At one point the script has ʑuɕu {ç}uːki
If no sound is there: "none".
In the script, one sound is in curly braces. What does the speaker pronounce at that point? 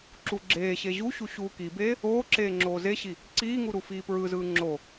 ɕ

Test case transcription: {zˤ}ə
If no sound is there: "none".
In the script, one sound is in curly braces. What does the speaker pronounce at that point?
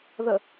ð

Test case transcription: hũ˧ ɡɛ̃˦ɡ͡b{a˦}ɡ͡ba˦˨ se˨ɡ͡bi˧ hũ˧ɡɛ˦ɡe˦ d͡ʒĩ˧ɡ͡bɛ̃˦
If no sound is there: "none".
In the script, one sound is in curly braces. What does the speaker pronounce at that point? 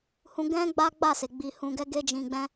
a˦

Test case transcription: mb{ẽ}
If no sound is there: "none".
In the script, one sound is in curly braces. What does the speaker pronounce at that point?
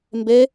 e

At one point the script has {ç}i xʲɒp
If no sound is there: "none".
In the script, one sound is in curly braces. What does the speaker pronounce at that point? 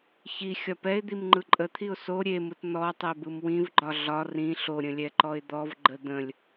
ç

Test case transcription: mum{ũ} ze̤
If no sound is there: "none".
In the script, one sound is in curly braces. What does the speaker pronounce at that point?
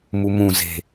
ũ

